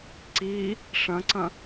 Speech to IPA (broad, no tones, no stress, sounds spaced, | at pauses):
ǀ i | ʂ ɐ̃ ǀ ɐ̃